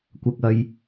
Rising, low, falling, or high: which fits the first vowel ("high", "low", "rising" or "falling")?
low